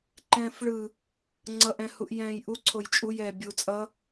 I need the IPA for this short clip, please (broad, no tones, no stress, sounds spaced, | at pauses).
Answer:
ǃ ɛ̃ː f ɭ ɯ | ŋ͡ǀ ʌ ʔ ɛ̃ h u ʔ j ɛ̃ː j ʔ u ǀʰ o j t͡ʃʼ u j ɛː bʲ u t͡sʼ ʌ